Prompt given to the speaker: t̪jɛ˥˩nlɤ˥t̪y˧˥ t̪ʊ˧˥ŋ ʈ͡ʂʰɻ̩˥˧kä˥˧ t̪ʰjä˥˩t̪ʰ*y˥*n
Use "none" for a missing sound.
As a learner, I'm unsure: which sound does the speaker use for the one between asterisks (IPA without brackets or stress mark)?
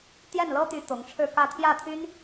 y˥